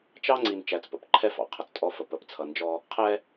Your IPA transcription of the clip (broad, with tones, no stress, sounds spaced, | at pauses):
t͡ʃ ɑ˦ ŋ͡ǀ i˨ n t͡ʃ æ˨ t͡s p ə̰˨ p ǃʰ ɛ˦ f ɑ̰˨ qʰ ʌ˨ t͡s tʼ ɔ˦ f ə˨ p ə˨ p t͡sʰ ʌ˨ n d͡ʒ ɔ˦ | qʰ ɛ˦